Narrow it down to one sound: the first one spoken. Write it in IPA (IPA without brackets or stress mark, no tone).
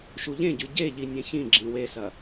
ʃ